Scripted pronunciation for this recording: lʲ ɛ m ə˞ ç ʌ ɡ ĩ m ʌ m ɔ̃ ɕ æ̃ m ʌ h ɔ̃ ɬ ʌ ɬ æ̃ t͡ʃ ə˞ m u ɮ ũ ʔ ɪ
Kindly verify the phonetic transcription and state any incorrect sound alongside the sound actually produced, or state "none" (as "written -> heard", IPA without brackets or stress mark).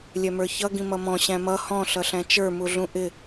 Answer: none